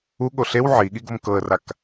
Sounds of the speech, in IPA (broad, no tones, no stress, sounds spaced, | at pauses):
u ɠ o ɬ e w ʕ i ɠ i ɡ o m k ɤ ə̯ r a k